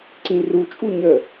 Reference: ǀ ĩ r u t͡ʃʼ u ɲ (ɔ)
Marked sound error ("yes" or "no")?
yes